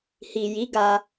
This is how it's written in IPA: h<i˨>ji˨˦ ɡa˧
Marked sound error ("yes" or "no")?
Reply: no